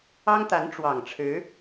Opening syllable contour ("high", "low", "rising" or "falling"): high